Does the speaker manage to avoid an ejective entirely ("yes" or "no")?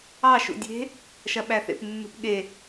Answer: yes